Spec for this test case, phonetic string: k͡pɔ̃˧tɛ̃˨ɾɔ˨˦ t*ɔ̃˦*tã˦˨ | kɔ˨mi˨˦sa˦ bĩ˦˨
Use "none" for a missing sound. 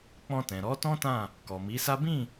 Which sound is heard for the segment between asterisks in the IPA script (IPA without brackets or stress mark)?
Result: ɔ̃˦